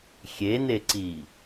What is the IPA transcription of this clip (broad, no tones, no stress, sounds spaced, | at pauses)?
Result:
xʲ e n e ǀ i